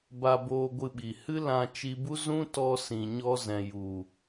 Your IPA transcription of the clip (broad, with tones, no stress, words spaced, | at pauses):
ba˧boː˧ɡʷɨ˧ɓi˨ hɨ˦lã˧t͡ʃi˧bu˦ zũ˦tɔ˧ sĩ˨ ɲɔ˧zɛ̃˨ju˨